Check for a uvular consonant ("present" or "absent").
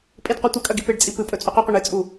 present